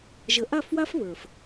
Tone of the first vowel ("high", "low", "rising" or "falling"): low